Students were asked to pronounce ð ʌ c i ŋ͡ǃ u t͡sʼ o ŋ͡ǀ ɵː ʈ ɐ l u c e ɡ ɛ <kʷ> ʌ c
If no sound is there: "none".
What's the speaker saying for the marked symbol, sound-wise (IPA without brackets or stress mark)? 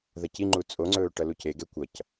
kʷ